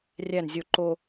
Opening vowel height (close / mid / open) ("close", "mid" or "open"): open